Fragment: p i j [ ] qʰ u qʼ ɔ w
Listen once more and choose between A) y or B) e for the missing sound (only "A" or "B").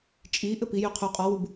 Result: A